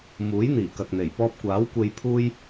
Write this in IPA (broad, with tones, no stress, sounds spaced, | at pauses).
m uː˨˥ j n̪ iː˨˩ k ɐ˨ k̚ n̪ e˨˩ j p ɔː˧ p̚ kʷ aː˨˥ w kʷ e˧ j pʰ uː˥ j